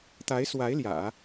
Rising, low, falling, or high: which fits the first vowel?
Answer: rising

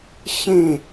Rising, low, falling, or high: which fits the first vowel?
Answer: falling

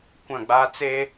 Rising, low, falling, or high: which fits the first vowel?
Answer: falling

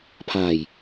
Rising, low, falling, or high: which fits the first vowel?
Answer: low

